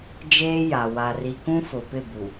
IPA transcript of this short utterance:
d͡ʒ eː˦ j a˨ w a˨ r i˨ k ũ˦ f ʊ˨ p ɪ˦˨ b u˨

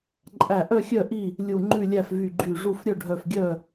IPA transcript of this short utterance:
ǃʼ æ˧˩ ʔ œ˥˨ xʲ œ˥˨ ʔ i˥˨ | lʲ u˧˩ ŋ͡ǃ ʉ˥˨ lʲ æ˥˨ f v y˧˩ ɡ͡ǃ y˧˩ ʐ u˧˩ f ɾʲ œ˥˨ ɖʱ œ˧˩ f ɡʲ œ˥˨

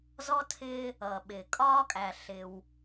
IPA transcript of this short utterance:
z ɔ˦ tʰ ɪː˦ | ʌː˨ ɓ ɪː˨ kʼ ɒː˦ kʼ æ˨ ɬ ɪ˦ w

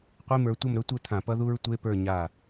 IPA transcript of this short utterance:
qʷ i˧˥˧ m ə˞˨˦ tʷ ʌ˥˨ m ɾ ɵ˦˥ tʷ ɘ˥˨ t̪ʰ ã˧˩˧ p ʌ˦˥ ð u˦˥ ɹ tʷ e˧˥˧ p ə˞˥˨ ɲ a˧˩

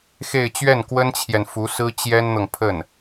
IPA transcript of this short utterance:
x e˥˧ ɪ̯ t͡ɕ ɥ ɛ˥˩ n k w ə˥ n t͡ɕʰ j ɛ˨ n f u˧˥ s ɹ̩˥ t͡ɕ j ɛ˥ n n̪ ɤ˨ ŋ pʰ ə˥˩ n

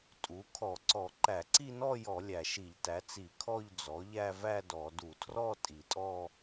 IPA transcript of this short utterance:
tʼ u˩˥ kʰ ɔ˧˩˧ ǀ ɔ˧˩˧ ǃ æ˧˩˧ ǀ i˥˧ n ɔ˥˧ j ɔ˧˩˧ lʲ æ˨˩ ʃ i˧˩˧ ʎ t æ˩˥ t͡s i˧˩˧ kʰ ɔ˥˧ ʎ d͡z ɔ˩˥ ʎ æ˥˧ v æ˥˧ d ɔ˧˩˧ d u˧˩˧ tʰ r ɔ˥˧ tʼ i˨˩ tʼ ɔ˥˧

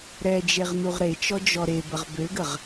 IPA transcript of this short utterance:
ɾ ɛ d͡ʒ e ʁ n u ʁ ɾ e t͡ʃ ɔ d͡ʒ ɔ ɾ e b ə ʁ b ø ɡ ə ʁ

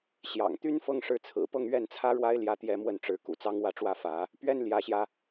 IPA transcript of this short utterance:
ɕ j ɑ̰˨˩ ŋ t̪ y˥ n f ɤ˥˧ ŋ ʂ ɻ̩˥˩ t͡sʰ ɹ̩˨˩ p ɤ˥˧ ŋ ɥ ɛ˥˩ n t͡sʰ ä˥ ɻ w a˥ ɪ̯ l j ä˥ t̪ j ɛ˥ m w ə˥˩ n ʈ͡ʂ ɻ̩˧˥ k ṵ˨˩ t͡s ɑ˥ ŋ w ä˥˩ ʈ͡ʂ w ä˥ f ä˧˥ | p ɥ ɛ˥ n l j ä˧˥ ɕ j ä˧

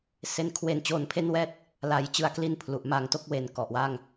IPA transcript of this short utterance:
s e˦˥ n kʰ w e˧ n t͡ɕ oː˧ n pʰ e˥˩ n w ɛː˥˩ t̚ | l a˩˦ j t͡ɕ ɯ˨˩ a̯ k l i˧ n pʰ l u˨˩ ʔ m a˨˩ ŋ t o˥˩ k̚ w e˩˦ n k ɔ˨˩ ʔ w a˥˩ ŋ

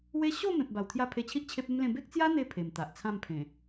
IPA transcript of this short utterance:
w e˦ ɕ o˥˧ m ẽ˨ p̚ b a˨˩ w t̪ʰ j a˧ pʰ e˧ t͡ɕʰ i˦ ʔ t͡ɕʰ e˦ p̚ e˦ m l ẽ˥˧ b e˦ k̚ t͡s j a˦ n̪ e˧ pʰ e˨˩ m t̪ a˨ ʔ t͡sʰ ã˥˧ m pʰ ẽ˨˩

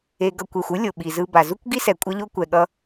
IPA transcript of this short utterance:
e˧ ɡ ʌ˧ kʷ e˨ xʷ ɯ˦ lʲ o˨ ɓ i˨ z ɯ˧ b a˨ z u˦ kʷ ɡ i˦ s ɛ˨ kʷʼ ʌ˦ ʎ o˦ kʷ ɛ˨ ɠ ʌ˧

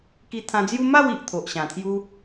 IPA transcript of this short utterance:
k i˧ t̪ʰ ã˧ d͡z j u˦ m a˥˧ w i˨ ʔ t̪ʰ o˨ ʔ ɕ ã˨˩ t̪ʰ j u˦

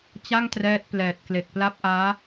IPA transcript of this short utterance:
t͡ɕ a˥˩ ŋ t r ɛː˦˥ t̚ p l ɛː˨˩ t̚ k l e˨˩ k̚ p l a˦˥ p̚ ʔ aː˦˥

